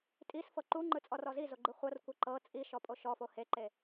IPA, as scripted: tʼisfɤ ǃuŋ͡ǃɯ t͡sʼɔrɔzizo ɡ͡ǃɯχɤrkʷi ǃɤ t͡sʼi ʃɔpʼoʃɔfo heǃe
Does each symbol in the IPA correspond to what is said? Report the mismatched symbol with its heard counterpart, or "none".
χ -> χʷ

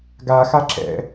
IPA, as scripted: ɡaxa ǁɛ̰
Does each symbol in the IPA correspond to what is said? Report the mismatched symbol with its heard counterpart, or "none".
none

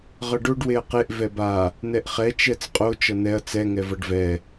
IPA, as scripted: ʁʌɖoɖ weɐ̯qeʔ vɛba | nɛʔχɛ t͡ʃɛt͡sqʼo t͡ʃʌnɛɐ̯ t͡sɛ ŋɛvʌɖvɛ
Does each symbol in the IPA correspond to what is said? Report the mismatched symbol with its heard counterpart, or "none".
none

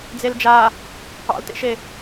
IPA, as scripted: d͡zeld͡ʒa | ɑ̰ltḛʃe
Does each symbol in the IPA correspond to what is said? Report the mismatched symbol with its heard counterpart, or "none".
none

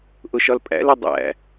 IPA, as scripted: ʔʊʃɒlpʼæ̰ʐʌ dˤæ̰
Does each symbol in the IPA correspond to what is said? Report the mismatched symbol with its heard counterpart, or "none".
ʐ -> l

